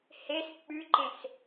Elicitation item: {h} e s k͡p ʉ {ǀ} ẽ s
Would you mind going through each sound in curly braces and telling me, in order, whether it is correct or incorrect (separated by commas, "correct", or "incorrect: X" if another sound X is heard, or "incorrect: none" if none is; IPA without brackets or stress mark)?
correct, incorrect: ǃ